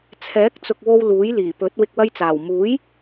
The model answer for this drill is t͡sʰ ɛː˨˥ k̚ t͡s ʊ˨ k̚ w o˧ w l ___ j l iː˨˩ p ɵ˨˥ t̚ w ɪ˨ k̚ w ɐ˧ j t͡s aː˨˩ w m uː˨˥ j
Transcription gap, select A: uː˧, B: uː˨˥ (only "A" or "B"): B